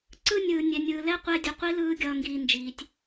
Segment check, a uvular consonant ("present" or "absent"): present